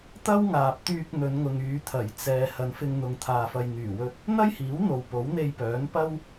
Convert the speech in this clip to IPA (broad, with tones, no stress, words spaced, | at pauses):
t̪ɐ˥wŋaː˨p̚t̪yː˧k̚ n̪ɵ˨˧nŋʊ˨ŋyː˨˧ t̪ʰɐ˨˩j t͡sɛː˨ hɐ˨˧nfɪ˧ŋn̪ʊ˨ŋ t̪ʰaː˨fɐ˨j n̪yː˨˩wɵ˧t̚ | n̪ɐ˥jhiː˨˥wn̪o˨w po˨˥wn̪e˧jpœː˨˥npɐ˥w